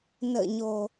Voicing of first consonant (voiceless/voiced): voiced